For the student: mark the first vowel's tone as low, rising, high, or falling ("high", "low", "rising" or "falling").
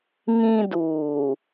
high